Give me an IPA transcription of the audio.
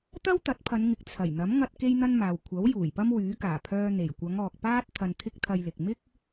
t̪ ɐ˥ w t̪ ɐ˨˥ t̚ pʰ ɐ˨˧ n ŋ ɪ˨ k̚ t͡sʰ ɐ˨˩ j n̪ ɐ˨˥ m ŋ ɐ˧ t̚ k e˥ j n̪ ɐ˥ n m aː˨ w kʷʰ ɐ˨˥ w j uː˨˩ j p ɐ˥ m w yː˨˥ k aː˨˩ pʰ œː˧ n̪ e˨˩ j kʷ ɐ˨˧ ŋ ɔː˨ k̚ p aː˥ t̚ t̪ʰ ɐ˧ n t̪ʰ ɪ˥ k̚ t̪ʰ ɐ˧ j l ɪ˨ k̚ m ɪ˥ k̚

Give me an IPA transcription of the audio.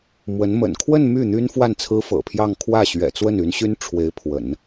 m w ə˧˥ n m ə̰˨˩ n kʰ w ə˥˧ n m y˥˩ n̪ y˥ n f w a˥˩ n t͡sʰ ɹ̩˥ f ɤ̰˨˩ pʰ j ɑ˥˧ ŋ kʰ w ä˥˩ ɕ ɥ ɛ̰˨˩ t͡s w ə˥˩ n y˧˥ n ɕ y˥ n ʈ͡ʂʰ w e˧˥ ɪ̯ pʰ w ə̰˨˩˦ n

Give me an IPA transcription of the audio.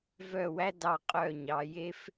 v œ˥˩ w æ˥ d ɑ˥˧ qʼ œ˥˩ ɲ ɑ˨˥ j e˥ f

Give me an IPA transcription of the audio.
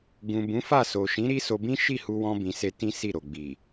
ɡ ũ˨ b ũ˨˦ f a˦˨ s o˨ ʃ ĩ˨˦ ɾ i˦ s o˧ b ĩ˦ ʃ i˦˨ h u˧ w ɔ̃˧ b ĩ˨ s e˧ t ĩ˦ s i˦˨ ɾ o˨ ɡ͡b i˨

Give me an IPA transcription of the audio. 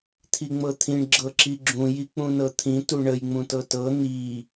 t̪ʰ i ŋ͡m ɤ t̪ʰ ĩ ɳ ɡ͡ǁ ɤ ǁ i ɡ͡ǁ ũ j i k͡p ũ n ɤ t̪ʰ ĩ t u ɳ ə j ŋ͡m ũ t ɤ t ɤ n̪ i

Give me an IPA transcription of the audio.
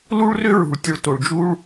l u˦ ɭ r ʏ˦ ɹ ṳ˨ ɭ tʲ ʊ˧ ɭ t o˨ ɭ d͡ʒ u˦ ɭ

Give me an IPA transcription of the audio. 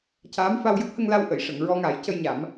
c aː˧˥ m f a˧ w j ə˦˥ k̚ h ə˧ ŋ l a˧ w ʔ ə˨˩˨ j ʂ ə˨˩˨ ŋ ɹ ɔ˧ ŋ a˨˩˦ j c ə˧ j ɲ a˨˩˦ m

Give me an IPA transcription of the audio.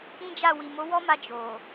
ĩ˦ d͡ʒ a˦˨ w i˨ m o˨˦ w ɔ˦ m a˧ d͡ʒ o˨

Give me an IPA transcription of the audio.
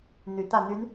n̪ y˨˦ t̪ ä˥˨ n̪ y˨˦ n

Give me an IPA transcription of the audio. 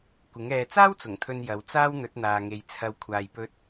kʷ ɪ˨˥ ŋ ɛː˧ t͡s aː˥ w t͡s ʊ˨˩ ŋ t̪ʰ ɵ˨ n j ɐ˨˧ w t͡s aː˥ w n̪ ɵ˨˥ t̚ n̪ aː˨ ŋ e˨ j t͡sʰ ɐ˧ w kʷʰ aː˨ j p ɵ˧ t̚

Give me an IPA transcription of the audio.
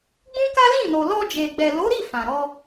ɡ͡b ũ˦ k a˦ l ĩ˦˨ n o˨ l ɔ˧ d͡ʒ e˨ ɡ͡b ɛ˨ l o˨˦ ɾ i˦˨ f ã˨ ɾ ɔ˧

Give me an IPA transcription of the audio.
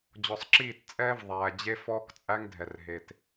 d͡ʑ ɔ˨ sˤ ǁ iː˦˨ t t͡sʼ ɛː˦ v ðˤ æː˨ d͡ʑ e˦ f ɔː˦ k t͡sʼ æ˦ ŋ dʱ ɛ˨ r ɦ eː˨ t

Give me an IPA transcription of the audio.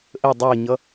ʔ əː dˤ əː ɲ ʌ

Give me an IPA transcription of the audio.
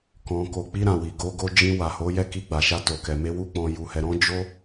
k ɔ̃˨ k o˨ k͡p i˧ ɾ ã˨ w i˨ ɡ o˧ ɡ o˧ d͡ʒ ĩ˧ w a˨ h o˨˦ j ɛ˦˨ k i˧ ɡ͡b a˨ ʃ a˧ t o˨ k ɛ˨ m e˧ w u˧ k͡p ɔ̃˨ j u˨ h ɛ˨ ɾ ɔ̃˧ d͡ʒ o˧

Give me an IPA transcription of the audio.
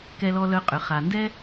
k ɛ˨ l ɔ˨ l œ˨ qʼ ʏ˩ χ a˩ n d ɛ˦

